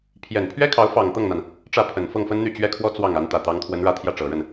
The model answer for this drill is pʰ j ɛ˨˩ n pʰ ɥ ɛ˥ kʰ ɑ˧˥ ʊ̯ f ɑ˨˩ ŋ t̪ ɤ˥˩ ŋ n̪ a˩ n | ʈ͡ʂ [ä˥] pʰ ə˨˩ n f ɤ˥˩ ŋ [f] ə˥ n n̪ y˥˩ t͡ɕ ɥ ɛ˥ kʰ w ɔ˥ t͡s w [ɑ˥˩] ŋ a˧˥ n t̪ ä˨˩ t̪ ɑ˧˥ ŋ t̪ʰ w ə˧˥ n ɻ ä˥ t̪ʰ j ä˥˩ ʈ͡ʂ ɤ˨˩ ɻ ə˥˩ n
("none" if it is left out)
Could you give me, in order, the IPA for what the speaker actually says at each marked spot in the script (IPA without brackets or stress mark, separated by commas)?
ä˥˩, f, ɑ˥˩